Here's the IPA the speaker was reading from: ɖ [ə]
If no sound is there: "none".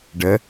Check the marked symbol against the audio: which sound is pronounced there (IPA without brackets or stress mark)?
ə